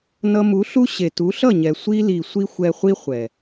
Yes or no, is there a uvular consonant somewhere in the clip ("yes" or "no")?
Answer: yes